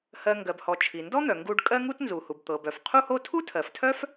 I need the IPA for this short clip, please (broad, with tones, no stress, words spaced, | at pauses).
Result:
hɜ˧ ŋɡɜ˩bhɔ˩ t͡ʃʰi˩ndɔ˥n̪œ˩ ŋɡu˧ɖ kʼɜ˥ŋu˥t nzu˩hu˩bt̪ɤ˩bœ˩f qʰu˥ho˥ tʰu˥tʰɜ˩ftʰœ˥f